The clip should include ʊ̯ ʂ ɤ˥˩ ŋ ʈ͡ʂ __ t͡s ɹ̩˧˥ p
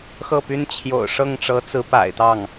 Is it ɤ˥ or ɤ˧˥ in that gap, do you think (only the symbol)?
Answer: ɤ˧˥